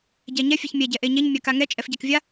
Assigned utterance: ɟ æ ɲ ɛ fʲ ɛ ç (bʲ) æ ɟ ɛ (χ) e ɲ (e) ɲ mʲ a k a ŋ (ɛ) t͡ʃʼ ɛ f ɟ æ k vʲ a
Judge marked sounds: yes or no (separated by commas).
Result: no, no, yes, yes